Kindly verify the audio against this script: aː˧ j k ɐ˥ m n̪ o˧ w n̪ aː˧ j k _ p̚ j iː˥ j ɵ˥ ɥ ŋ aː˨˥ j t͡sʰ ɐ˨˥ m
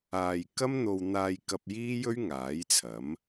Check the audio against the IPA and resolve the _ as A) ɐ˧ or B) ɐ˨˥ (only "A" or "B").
A